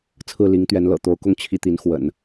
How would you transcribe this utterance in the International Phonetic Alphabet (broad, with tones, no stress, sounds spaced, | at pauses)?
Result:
t͡sʰ ɹ̩˥˩ l i˧˥ ŋ t̪ ɥ ɛ˧˥ n l ɤ̰˨˩ t̪ o˧˥ ʊ̯ k ʊ˥˧ ŋ t͡ɕʰ i˥˩ t̪ i˧˥ n x w ə̰˨˩˦ n